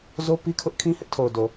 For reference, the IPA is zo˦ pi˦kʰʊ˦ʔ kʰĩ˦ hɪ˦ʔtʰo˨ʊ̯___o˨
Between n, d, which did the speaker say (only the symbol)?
d